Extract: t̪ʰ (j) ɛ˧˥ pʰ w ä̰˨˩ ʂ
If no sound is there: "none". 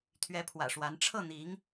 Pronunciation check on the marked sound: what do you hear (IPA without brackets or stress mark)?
ɥ